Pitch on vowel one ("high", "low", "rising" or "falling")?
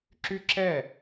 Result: high